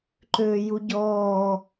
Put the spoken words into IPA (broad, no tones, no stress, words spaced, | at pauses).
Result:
ǃøːjuɟɔː